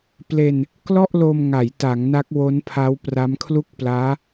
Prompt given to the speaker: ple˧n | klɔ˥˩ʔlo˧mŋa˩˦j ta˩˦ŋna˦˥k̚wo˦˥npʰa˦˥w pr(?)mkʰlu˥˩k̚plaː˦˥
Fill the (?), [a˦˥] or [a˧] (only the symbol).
a˦˥